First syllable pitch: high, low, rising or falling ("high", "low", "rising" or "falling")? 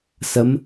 rising